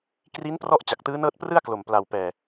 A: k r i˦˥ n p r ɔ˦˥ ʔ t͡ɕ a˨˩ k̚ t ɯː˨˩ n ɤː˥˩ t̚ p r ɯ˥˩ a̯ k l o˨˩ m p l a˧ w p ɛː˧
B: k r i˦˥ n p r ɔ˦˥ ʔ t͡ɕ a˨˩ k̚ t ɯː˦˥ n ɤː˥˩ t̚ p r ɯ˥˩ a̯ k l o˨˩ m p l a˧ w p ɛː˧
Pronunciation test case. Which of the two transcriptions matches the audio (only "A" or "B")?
B